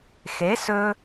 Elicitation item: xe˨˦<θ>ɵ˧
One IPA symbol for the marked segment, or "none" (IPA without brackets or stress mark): s